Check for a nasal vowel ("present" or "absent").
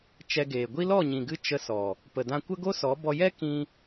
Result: present